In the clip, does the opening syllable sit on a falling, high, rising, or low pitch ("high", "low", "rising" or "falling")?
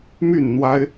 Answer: falling